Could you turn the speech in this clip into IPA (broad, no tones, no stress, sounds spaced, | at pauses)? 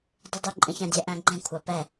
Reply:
dˤ y dˤ y ǃʼ ə̃ ç ã dʲ ɛ ʔ æ̃ ɡ͡ǃ ɛ̃ kʷʰ ɑ p ɛ